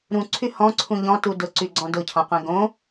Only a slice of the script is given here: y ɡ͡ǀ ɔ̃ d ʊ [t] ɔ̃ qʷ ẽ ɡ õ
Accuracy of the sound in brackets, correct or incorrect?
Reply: incorrect